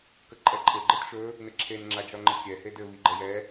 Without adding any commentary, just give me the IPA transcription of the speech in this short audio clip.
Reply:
k ə ǃʼ ɛ ǃʼ ɘ ɡ͡ǃ ɘ t ʃ ɵ | n ɘ ǁʰ e n ŋ͡ǁ a d͡ʒ ɒ ŋ͡ǃ ə kʲ ɛ h e d ɘ β i ɡ͡ǃ ə j ɛ

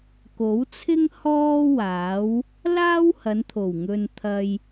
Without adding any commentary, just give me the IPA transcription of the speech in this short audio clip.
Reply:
k o˨˥ w t͡sʰ ɪ˥ ŋ h ɔː˥ w aː˨˥ w | l aː˥ w h ɐ˨˧ n t̪ʰ o˨˩ w ŋ ɵ˧ n t̪ʰ ɐ˧ j

